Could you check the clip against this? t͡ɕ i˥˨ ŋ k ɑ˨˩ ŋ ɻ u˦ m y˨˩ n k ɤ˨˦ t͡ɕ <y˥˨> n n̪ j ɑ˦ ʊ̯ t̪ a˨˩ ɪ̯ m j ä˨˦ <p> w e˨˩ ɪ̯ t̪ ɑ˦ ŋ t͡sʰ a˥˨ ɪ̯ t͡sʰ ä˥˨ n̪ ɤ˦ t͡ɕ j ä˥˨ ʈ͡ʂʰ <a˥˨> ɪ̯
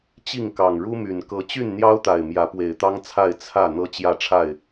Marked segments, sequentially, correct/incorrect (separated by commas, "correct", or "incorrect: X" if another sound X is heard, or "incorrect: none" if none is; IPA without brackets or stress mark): correct, correct, correct